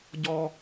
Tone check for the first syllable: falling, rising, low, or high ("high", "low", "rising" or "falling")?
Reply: high